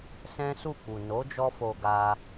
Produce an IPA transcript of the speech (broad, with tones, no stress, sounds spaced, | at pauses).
s ɛ̃˦ s u˦˨ k͡p u˨ n o˨˦ d͡ʒ ɔ˦ f o˧ ɡ a˧